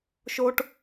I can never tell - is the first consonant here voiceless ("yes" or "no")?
yes